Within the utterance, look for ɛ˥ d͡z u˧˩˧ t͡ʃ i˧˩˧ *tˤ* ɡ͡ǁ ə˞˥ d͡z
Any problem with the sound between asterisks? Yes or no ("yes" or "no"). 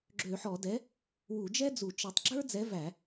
no